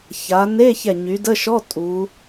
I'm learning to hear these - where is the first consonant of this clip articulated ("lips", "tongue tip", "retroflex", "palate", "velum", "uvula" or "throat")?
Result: palate